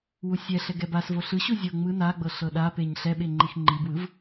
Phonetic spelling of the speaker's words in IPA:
w u sʲ ɛ ɬ ɛ ɡ ɛ b a s v o ɬ ɯ ɕ u zʲ ɤ ŋ͡m ɯ n a ɡ͡b ɤ ɬ ɤ ɗ a p e ɲ ɬ ɛ ɓ e ŋ͡ǃ i x ŋ͡ǃ i b w ɯ v

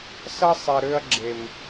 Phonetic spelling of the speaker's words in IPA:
s ʌ˦ sˤ ɛ˨ ɾ ø˧ ɐ̯ ɡ͡ǁ e˨ m

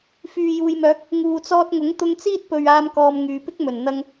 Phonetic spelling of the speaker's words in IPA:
f yː˨ j uː˨ j m œː˨˥ k̚ | ŋ uː˨ t͡s ɔː˧ t̚ ŋ ʊ˨˥ ŋ t̪ ʊ˧ ŋ t͡s iː˥ t̚ p ɵ˨ ɥ aː˧ m k ɔː˨ m ŋ yː˨ p ɪ˥ k̚ m ɵ˨˩ n n̪ ɐ˧ ŋ

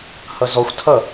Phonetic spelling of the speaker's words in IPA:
h ʌ z ɔ xʷ tʰ ʌ

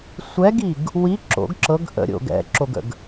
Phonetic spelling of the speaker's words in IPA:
sʷ ɛ ɡ i ɡ | w i ǁ o̰ ɡ ǁ ɤ ɡ ʔ ə̰ ɾʲ o̰ ɡ ɛ̰ ǁ o ɡ ə̰ ɡ

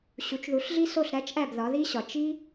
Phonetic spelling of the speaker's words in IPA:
ɕ u˩˥ t͡ʃ ð u˩˥ ɬ ɮ i˥ s o˥˩ ɬ ɾ æ˥ t͡ʃ ʔ æ˥˩ b ð ɒ˩˥ ð i˥ ɕ ɒ˩ t͡ʃ i˥

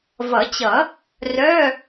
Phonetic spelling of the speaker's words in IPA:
v ʌ˨˩˦ t͡ɕ ʌ˨˩˦ | r œ˧˥˧

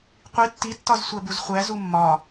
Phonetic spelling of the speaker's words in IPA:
qʷ i tː i tː ɒ z sʷ æ b u z χʷ æ z u mː ɒ

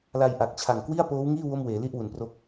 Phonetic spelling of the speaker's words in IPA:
l a˧ j ʔ a˨˩ k̚ t͡ɕʰ a˨˩ ŋ k w i˥˩ a̯ p oː˦˥ w ŋ iː˥˩ w o˥˩ m w eː˩˦ l i˥˩ ʔ w u˩˦ n p r o˦˥ k̚

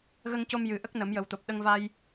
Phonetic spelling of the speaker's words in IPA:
ɣ ə˧ ŋ c o˧ m j ɨ˨˩˦ ʔ ə˦˥ k̚ n ə˨˩˦ m j ə˨˩ w t̪ o˨˩ p̚ ɗ ə˧ ŋ v a˧ j

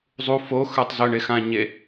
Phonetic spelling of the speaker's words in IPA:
zˤ u f o x ə˞ tˤ z ɵ ɳ e x ã ɲ e

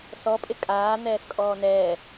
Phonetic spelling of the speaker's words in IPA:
s ɔ pʼ ɪ kʼ aː n̪ ɛː s kʼ ɔː n ɛː

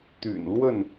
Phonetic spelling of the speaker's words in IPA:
t̪ y̰˨˩ n l w ə˥˨ n

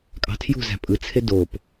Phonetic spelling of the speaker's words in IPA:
kʼ ɑ̤ tʰ j ṳ z æ̤ pʼ ɯ t͡sʰ e d o p

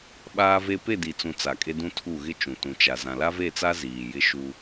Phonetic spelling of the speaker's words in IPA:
ɓ aː˦ v e˦ p e˦˨ d i˨ t͡s ũ˨ t͡s a˨ kʼ e˦ d ũ˦ tʰ u˦˨ ɣ ɪ˦ t͡ʃ ũ˨ t ũ˨ t͡ʃ a˨ z ã˨ l a˦ v e˦˨ t͡s a˦ z iː˨ j ɪ˦ ʃ u˦

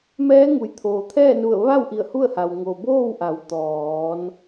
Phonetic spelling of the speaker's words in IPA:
m ɛː˧˥ ŋ u˩ j t̪ʰ oː˩ t̪ʰ ɛː˥˨ n u˧˩ ə̯ ʋ a˥˨ w ʔ i˧˩ ə̯ h u˥˨ ə̯ h a˩ w ŋ o˩ b oː˥˨ w ʔ a˩˧ w t̪ ɔː˩˧ n

